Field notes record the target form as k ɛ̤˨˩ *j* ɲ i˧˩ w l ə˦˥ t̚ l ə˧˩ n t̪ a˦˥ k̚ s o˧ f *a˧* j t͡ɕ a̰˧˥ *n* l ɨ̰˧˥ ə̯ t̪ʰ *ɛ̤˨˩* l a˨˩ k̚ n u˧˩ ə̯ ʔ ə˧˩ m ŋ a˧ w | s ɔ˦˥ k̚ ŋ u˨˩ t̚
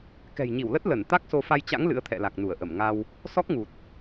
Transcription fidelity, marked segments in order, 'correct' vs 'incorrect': correct, correct, incorrect: ŋ, incorrect: ɛ̰˧˨

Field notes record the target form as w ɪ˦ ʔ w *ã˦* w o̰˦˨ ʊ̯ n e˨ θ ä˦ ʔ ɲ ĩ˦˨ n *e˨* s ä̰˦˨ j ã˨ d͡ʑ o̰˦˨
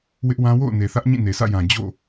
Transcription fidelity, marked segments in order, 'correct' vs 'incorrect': correct, correct

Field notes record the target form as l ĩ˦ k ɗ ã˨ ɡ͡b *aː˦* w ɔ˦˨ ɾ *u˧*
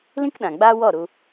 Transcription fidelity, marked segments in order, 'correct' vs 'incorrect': correct, correct

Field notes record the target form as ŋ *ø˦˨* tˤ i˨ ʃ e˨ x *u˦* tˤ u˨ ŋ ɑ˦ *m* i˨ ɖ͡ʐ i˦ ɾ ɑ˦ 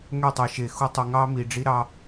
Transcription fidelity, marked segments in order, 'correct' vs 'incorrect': correct, correct, correct

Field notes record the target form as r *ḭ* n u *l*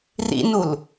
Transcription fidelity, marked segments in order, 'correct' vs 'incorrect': correct, correct

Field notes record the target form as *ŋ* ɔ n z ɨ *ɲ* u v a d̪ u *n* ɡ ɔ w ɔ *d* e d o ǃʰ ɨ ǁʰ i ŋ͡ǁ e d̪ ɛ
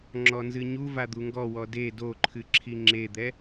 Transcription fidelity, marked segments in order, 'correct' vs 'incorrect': incorrect: ŋ͡ǁ, correct, incorrect: ŋ, correct

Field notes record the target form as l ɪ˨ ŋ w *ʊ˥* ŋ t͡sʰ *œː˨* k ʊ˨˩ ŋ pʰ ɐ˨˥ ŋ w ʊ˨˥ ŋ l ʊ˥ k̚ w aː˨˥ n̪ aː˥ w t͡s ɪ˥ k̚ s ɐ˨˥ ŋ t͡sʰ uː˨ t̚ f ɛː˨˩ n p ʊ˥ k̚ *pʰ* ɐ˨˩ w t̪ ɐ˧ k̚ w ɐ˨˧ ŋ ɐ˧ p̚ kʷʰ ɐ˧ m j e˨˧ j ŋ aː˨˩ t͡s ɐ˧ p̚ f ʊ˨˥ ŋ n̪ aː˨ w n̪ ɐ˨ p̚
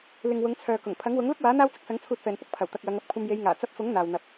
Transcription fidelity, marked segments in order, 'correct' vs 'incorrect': incorrect: ʊ˨˧, correct, correct

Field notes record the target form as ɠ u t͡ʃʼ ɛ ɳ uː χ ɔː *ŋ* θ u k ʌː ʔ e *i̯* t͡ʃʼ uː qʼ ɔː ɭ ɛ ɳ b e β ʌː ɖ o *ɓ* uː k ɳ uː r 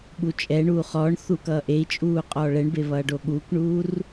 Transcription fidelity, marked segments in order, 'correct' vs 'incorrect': incorrect: ɳ, correct, incorrect: ɠ

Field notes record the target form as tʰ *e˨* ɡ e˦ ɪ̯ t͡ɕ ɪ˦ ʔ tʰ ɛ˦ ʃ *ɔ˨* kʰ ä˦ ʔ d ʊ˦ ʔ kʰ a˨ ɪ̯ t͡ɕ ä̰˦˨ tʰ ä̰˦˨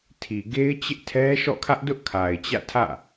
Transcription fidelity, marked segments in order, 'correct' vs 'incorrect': incorrect: i˨, incorrect: ɔ̰˦˨

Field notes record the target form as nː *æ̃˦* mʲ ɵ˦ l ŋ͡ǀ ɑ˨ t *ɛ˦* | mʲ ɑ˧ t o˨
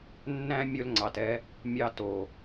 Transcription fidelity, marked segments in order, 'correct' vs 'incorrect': correct, correct

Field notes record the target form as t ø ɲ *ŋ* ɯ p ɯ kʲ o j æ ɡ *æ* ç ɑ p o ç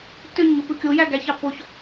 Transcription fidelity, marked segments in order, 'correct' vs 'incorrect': correct, correct

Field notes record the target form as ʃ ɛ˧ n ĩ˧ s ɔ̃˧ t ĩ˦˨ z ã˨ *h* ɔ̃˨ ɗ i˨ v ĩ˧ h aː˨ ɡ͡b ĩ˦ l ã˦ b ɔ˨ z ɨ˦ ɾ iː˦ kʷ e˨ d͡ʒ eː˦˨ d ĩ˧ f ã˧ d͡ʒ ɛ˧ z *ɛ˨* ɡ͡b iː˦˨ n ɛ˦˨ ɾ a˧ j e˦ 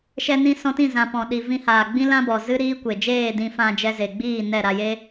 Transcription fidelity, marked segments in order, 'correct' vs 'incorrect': incorrect: p, incorrect: e˨

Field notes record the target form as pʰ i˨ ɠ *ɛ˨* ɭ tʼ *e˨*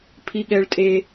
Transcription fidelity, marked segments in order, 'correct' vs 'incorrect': correct, correct

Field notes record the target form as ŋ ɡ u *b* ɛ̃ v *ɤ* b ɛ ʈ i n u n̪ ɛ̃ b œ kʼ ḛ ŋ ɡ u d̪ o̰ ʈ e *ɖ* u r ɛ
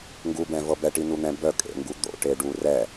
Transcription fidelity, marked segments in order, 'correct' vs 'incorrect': correct, correct, correct

